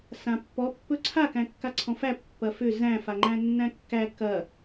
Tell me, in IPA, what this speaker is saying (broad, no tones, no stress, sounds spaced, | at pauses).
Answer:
s ã pː ɔ pː ɵ ǀʰ a k æ̃ kː a ǀʰ ɔ̃ f æ pː ɐ f ʏ z æ̃ f a ŋ͡ǃ æ̃ nː æ̃ kː æ k ɐ